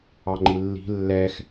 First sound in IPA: ɑ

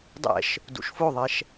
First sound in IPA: dˤ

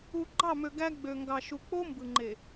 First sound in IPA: u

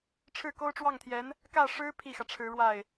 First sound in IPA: ʈ͡ʂʰ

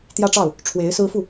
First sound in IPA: t̪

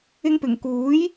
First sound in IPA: ɪ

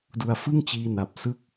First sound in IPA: d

